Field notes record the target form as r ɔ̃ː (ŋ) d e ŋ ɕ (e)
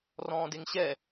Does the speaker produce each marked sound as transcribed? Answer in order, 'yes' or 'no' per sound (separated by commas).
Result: no, no